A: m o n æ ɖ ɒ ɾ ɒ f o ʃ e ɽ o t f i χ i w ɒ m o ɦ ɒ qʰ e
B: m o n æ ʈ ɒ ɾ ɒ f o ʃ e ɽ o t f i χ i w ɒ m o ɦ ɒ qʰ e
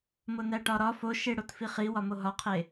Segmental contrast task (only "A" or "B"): B